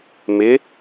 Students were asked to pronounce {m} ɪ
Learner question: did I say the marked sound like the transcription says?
yes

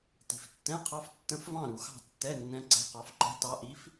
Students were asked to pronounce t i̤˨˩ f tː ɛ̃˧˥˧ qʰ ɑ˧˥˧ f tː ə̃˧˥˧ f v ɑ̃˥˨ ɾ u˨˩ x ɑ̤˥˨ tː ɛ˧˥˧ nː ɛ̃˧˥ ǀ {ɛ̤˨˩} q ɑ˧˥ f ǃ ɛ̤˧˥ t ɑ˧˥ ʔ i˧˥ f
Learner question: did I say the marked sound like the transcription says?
no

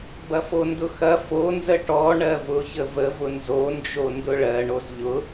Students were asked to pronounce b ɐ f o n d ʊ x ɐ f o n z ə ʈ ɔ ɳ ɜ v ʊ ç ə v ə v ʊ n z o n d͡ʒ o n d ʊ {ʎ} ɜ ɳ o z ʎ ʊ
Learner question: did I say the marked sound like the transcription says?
no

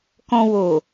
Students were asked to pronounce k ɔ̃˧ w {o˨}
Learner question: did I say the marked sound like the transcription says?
yes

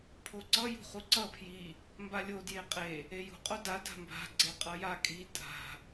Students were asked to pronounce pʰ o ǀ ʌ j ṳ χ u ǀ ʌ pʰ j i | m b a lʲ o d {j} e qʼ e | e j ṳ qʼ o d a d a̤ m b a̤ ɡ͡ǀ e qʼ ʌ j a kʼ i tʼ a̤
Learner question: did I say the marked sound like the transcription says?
yes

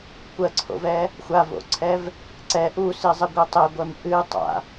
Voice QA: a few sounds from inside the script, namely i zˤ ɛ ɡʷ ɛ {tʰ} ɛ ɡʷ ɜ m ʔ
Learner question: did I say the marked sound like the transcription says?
no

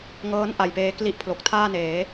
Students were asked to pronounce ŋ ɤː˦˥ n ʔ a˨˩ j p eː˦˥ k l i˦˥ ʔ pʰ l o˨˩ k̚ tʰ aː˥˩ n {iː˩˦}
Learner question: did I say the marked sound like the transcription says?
no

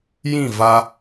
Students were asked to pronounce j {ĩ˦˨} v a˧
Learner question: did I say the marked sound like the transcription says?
yes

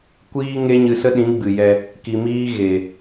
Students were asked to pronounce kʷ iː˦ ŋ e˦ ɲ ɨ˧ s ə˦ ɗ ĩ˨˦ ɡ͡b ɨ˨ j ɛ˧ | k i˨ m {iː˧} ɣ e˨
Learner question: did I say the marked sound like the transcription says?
yes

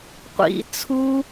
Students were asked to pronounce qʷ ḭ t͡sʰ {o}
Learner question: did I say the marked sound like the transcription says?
no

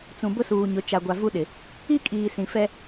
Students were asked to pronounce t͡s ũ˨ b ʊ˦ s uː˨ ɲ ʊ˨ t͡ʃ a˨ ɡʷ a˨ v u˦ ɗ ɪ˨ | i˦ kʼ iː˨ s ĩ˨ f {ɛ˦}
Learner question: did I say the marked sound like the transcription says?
yes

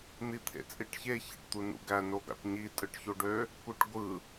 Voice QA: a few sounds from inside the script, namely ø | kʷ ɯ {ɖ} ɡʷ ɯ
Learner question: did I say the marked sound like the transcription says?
no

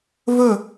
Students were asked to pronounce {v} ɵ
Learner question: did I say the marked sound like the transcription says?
yes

